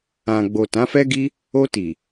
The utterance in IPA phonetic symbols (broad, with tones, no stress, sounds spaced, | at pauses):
ã˨ ɡ͡b o˨ t ã˨˦ f ɛ˦ ɡ i˦ | o˧ t i˨